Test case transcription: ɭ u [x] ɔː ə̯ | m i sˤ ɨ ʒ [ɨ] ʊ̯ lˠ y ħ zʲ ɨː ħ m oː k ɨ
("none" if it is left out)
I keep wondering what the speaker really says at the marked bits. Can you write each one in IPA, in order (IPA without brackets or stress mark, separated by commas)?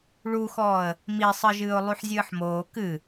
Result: x, ɨː